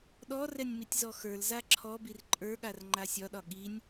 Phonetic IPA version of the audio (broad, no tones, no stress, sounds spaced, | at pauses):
ɗ ɔ r ɛ nʲ m i tʲ z ɔ x ə˞ l z a ǁʰ ɔ b i r ǃʼ ə˞ ɠ a r ŋ͡ǃ a sʲ ɒ ɗ ɒ ɠ i nʲ